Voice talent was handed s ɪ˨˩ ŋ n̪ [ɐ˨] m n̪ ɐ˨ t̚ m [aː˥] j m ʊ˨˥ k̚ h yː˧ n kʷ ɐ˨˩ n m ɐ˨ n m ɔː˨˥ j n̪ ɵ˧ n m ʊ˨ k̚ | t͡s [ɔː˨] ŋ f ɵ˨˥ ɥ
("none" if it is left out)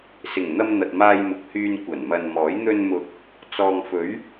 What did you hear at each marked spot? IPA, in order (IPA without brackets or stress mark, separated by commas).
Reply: ɐ˧, aː˧, ɔː˨